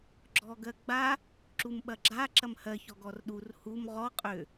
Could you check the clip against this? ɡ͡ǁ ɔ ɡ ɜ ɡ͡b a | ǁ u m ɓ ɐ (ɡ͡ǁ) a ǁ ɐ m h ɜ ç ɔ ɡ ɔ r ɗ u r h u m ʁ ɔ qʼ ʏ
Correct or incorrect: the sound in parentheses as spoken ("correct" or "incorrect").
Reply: correct